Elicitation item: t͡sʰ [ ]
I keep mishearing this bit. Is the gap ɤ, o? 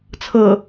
ɤ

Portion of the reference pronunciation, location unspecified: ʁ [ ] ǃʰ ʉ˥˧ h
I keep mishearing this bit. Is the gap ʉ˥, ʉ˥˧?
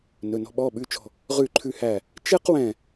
ʉ˥˧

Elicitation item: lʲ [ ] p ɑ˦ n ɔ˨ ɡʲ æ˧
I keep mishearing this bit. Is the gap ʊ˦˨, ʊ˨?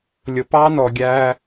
ʊ˨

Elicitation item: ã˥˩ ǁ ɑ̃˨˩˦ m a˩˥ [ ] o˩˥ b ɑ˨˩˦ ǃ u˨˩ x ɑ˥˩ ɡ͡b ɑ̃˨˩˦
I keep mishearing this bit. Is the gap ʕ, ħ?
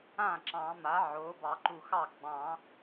ʕ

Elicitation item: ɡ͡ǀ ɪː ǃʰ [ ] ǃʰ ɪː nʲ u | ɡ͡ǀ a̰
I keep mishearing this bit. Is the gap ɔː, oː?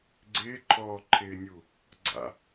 ɔː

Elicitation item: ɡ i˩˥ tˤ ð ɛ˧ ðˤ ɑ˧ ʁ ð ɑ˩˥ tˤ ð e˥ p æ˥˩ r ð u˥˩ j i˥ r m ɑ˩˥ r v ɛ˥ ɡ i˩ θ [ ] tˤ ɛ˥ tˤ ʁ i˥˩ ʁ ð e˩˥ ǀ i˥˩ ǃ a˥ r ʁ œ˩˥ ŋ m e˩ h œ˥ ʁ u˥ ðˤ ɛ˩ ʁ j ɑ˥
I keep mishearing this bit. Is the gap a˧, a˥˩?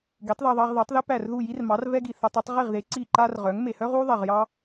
a˧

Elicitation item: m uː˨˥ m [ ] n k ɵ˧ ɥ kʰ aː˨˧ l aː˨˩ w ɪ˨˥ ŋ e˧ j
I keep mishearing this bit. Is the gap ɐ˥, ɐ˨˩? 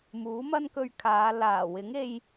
ɐ˥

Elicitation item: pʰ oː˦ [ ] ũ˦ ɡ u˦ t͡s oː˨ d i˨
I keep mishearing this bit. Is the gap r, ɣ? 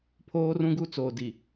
r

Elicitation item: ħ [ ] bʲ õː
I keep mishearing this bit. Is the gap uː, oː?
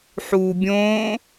uː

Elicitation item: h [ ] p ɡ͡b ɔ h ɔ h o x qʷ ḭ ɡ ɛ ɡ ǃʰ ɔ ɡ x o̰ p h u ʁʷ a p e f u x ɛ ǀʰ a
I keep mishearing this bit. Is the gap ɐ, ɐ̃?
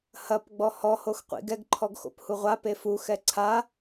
ɐ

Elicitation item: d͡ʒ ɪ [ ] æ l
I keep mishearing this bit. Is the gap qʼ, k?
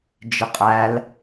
qʼ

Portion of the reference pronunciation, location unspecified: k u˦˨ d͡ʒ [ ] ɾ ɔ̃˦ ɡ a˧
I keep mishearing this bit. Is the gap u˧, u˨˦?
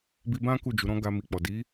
u˨˦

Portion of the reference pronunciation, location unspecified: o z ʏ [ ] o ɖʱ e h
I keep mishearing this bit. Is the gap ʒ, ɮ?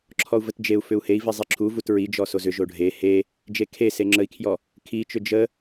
ʒ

